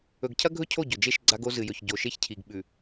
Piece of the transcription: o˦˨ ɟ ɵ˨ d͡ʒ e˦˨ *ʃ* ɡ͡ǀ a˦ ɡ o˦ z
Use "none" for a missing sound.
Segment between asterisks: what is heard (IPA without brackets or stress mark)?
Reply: ʃ